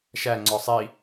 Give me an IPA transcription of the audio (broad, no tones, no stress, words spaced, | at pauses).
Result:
ʃæ ŋ͡ǀɔsˤi